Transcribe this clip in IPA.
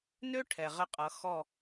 n ø˥ ʈʰ ɛ˩ ʁ ə˧˩ qʼ ʌ˩˧ x ɔ˧˩

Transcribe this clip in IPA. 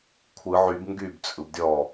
kʷʰ ɯ ʕ y b ŋ ɡ y b t͡sʼ ɯ b dʲ ɔ

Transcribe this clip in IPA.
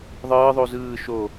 ðˤ ɯː ðˤ u z ɯː ʃ o

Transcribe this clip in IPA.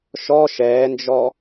ʃ ɔ ʃ ɛː n d͡ʒ ɔ

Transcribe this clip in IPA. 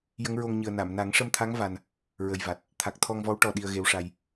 j ə˧˥ ŋ ɹ o˧ ŋ ɲ ɨ˨˩ ə̯ n a˨˩˨ m n a˨˩˦ ŋ ʂ ə˧ m t̪ʰ a˧˥ ŋ v a˧ n | ɹ ə˨˩ j v a˨˩ t̚ | t̪ʰ a˨˩ k̚ t̪ʰ ɔ˧ ŋ v ɔ˧˥ w ʈ ɔ˨˩ ɗ i˧ ə̯ ɣ e˧˥ w ʂ a˧ j

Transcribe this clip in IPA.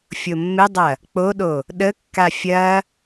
fʲ o mː ɪ dˤ ɐ | k͡p o ɗ o | ɗ ə kː a fʲ ɐ

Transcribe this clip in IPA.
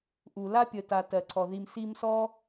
ʔ u˩ l a˥ pʲ ə˨ t a˨ t ɜ˩ ǀʰ ɔ˩ ð i˨ m s i˦ m s ɔ˥

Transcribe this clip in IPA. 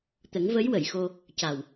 t̪ ə˨˩˦ ŋ v ə˧˥ j w ə˨˩˨ j x o˧ | c a˨˩ w

